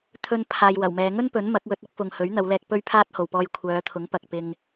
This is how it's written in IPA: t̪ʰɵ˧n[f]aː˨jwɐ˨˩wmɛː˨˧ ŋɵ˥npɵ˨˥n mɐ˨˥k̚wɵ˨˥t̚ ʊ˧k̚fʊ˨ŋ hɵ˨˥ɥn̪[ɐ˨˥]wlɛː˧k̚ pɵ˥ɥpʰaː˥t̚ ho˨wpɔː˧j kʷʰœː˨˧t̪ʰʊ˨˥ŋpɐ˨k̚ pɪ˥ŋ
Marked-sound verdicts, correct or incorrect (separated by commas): incorrect, incorrect